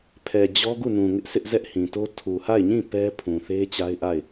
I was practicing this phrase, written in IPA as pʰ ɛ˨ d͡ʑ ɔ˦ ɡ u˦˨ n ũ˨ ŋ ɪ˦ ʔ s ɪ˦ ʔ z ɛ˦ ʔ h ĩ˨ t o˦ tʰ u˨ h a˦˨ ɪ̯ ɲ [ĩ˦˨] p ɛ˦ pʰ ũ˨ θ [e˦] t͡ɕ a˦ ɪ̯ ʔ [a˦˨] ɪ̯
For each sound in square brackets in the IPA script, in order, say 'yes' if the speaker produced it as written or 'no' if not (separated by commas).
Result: yes, yes, yes